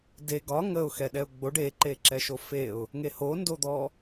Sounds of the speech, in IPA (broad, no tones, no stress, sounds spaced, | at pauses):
d e ɡ ɒ ŋ ə ʊ̯ x ɛ ɗ ɛ ʊ̯ ɡ͡b o ɖ e ǃ e ǁ ɛ ʃ o f e ʊ̯ | ŋ e h o n d o d̪ ɔ